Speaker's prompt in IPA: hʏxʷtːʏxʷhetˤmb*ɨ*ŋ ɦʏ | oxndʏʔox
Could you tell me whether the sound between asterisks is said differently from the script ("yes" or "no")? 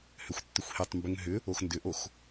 yes